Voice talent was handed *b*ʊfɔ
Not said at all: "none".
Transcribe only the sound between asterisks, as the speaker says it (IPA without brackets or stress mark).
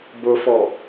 b